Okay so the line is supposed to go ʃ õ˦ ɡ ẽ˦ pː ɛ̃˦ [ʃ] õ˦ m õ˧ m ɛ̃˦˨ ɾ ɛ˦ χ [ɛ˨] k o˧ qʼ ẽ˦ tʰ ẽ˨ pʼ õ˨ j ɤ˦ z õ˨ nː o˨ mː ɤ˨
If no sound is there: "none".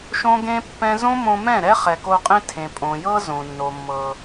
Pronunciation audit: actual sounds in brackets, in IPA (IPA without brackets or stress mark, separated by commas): z, ɛ˨